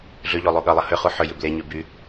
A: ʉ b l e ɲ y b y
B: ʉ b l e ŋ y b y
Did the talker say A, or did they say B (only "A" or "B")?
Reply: A